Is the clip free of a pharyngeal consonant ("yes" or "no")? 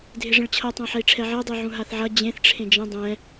no